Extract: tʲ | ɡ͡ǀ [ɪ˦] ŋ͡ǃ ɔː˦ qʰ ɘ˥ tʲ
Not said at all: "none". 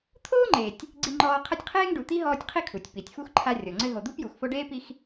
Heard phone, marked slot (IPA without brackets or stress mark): i˦